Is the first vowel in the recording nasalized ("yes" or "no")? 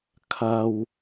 no